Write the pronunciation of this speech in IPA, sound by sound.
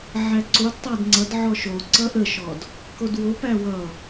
ʕ æ ǀ o d tˤ æ d ŋ͡ǀ ʌ d ʕ ɔ ʃ o ǀ ʌ ʔ ə ʃ ɔ d | k o d w o p æ w ʌ

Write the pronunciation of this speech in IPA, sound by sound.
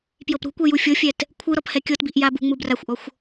p j ɤ p ɾ ṳ kʷ ɛ j u fʲ ɤ fʲ ɛ t | kʷʰ ɯ ɾ ɔ p h ɛ kʲ ɤ t b i̤ ʔ j a b ṳ ŋ͡m u b r a xʷ ʔ ɔ xʷ

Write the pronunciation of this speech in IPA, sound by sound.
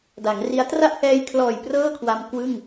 d a˩˦ ŋ r i˦˥ a̯ t r a˥˩ ʔ h ɛː˧ j kʰ l ɔː˨˩ j p r ɤː˥˩ kʰ w a˧ m k w ɯ˥˩ ŋ

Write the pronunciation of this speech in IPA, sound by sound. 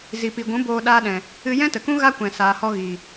z i˨ p i˨ ɡʷ ũ˨˦ b oː˧ ɗ aː˧ ɗ ɛ̃˨ | ɨ˧ j ɛ̃˦ t ə˨ k ũ˦ ɣ a˦ kʷ ɛ̃˨ s aː˨ h ɔ˧ ɣ i˨

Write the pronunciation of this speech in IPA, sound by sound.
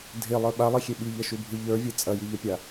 dʱ e lˠ ə˞ ɓ a lˠ i xʲ e ɓ i ʎ ɐ ʃ u bʱ ɯ ʎ ə˞ vʲ e t͡sʼ ɐ j i ʎ ɐ pʲ a

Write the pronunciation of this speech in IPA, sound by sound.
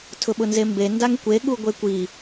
tʰ ʊ ɓ ʊ n z e m b e n d a ŋ kʷ e ɠ u ɡʷ e kʷ i

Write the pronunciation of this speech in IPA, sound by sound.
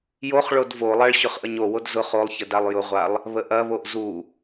j o χ ɭ o d v o lˠ a ɭ ɕ ʊ χ ʔ ə ɲ o w o d z ʊ χ o lˠ ç ə d a lˠ j ʊ ʁʷ a lˠ | β ə ʔ ɐ β o ʔ z u

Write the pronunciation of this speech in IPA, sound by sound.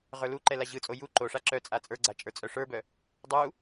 ʁ ə˞ l u ǃ ɛ l a ʑ ɯ t͡sʼ o j u ǃ o ʂ a ǁ œ t͡sʼ a t͡sʼ ə˞ ɡ͡ǀ a t͡ʃʼ ə˞ t͡sʼ œ ʂ ə˞ b œ | dˤ u

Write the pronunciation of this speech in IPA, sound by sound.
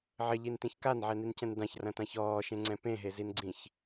ʕ ɪ ʎ i n t ĩ ç k a n ʕ ɛ n i n c ɛ̃ n d ã ç r ɐ̃ t ã ç ɔː ʃ ẽ ŋ͡ǀ ɛ̃ p ẽ ɦ e z i n ɡ͡ǀ ĩ ç

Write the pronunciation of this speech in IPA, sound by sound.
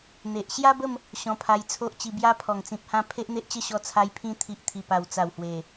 n̪ e˨ ʔ ɕ j a˦ b ə˥˧ m | ɕ ɔ̃˧ pʰ a˧ j t͡sʰ o˦ ʔ t͡ɕ i˧ b j a˦ pʰ ɔ˨˩ ŋ t͡s ĩ˨ p̚ h ã˧ pʰ e˦ ʔ n̪ e˦ ʔ t͡ɕ ə˥˧ ɕ ɔ˧ t͡sʰ a˧ j pʰ ĩ˧ t̪ʰ i˨ ʔ t̪ʰ i˨˩ p a˨˩ w t͡s a˨˩ w h w e˨˩

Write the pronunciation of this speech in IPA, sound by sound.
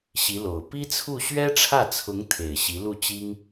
ɕ i˧˥ l o˨˩ ʊ̯ p i˥ t͡sʰ u˥˩ ɕ ɥ ɛ˥ ʈ͡ʂʰ ä˥˩ t͡sʰ ʊ˧˥ ŋ t̪ʰ e˨˩ ɪ̯ ɕ i˧˥ l u˥˩ t͡ɕ i˥ ŋ

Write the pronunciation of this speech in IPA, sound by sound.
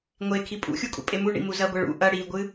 ŋʷ e kʰ i pʼ ṵ xʲ u kʼ ṵ pʼ e m u ɳ ḭ m u z ɐ ɡʷ ɜ ɭ ṵ ʔ ɐ ɽ i ɡʷ ɨ

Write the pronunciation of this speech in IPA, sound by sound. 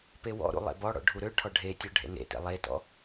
p e w ɔ̰ ɾ ṵ lˠ ḛ b ɔ ɽ ɔ̰ ɖʱ u ɾ ø ʈʰ ɔ ɖʱ e tʲ ɔ ɖʱ ḛ n ḛ t ḛ lˠ e t ɔ̰

